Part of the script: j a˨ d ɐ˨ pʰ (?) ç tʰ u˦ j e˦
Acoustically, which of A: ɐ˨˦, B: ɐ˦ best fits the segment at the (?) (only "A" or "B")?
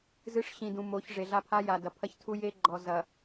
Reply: B